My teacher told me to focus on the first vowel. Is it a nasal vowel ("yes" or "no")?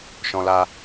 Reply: yes